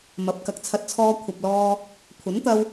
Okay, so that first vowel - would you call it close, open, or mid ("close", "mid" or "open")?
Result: open